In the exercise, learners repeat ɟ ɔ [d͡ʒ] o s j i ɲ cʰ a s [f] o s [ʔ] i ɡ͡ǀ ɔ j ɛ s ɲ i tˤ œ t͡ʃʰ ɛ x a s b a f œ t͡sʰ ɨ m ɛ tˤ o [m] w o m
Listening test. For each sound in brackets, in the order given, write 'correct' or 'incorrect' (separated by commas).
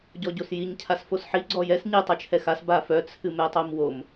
incorrect, correct, incorrect, correct